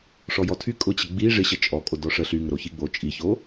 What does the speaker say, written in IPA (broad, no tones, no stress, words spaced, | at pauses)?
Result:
ʂɔjɔtʰy kʼʊt͡ɕə ɡ͡bi ʐɪɕə t͡ʃʼɔkʼo dɔʂə ɬyŋəɾo çiɡ͡bo t͡ʃʼiço